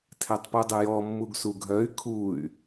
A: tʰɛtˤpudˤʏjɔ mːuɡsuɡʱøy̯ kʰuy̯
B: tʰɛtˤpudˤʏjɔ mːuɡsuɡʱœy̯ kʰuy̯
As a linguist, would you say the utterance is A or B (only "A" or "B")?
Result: B